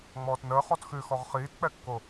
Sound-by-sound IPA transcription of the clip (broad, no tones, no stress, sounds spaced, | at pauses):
ŋ͡m ɔː t n əː χ ɔ t x ʉ x ɔ ʁ χ iː t k͡p ɛ kː o